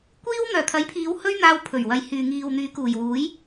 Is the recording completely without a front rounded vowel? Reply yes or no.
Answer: no